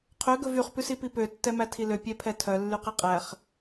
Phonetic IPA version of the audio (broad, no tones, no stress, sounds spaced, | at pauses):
qʰ ø ɡ ɵ v y χ p ʉ s i p i p ø tː ɛ m æ tʰ i l ø pʲ ɛ pʰ ɛ tʰ œ lː y q e qʼ æ χ